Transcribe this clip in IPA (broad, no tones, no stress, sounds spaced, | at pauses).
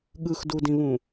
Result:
ɠ ɯ x d u d ĩ β ũ